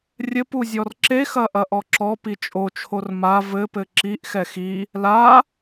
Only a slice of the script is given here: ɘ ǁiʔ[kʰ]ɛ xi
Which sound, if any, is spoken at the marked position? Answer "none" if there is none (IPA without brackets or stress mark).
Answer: x